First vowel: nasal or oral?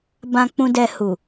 nasal